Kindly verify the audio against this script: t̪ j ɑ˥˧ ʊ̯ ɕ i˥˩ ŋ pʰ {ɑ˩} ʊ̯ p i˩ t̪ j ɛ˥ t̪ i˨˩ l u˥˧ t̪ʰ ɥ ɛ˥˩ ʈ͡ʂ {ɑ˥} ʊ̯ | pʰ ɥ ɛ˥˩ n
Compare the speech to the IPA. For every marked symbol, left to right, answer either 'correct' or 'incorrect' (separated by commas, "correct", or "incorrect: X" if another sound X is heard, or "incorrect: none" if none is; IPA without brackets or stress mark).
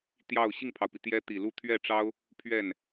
correct, correct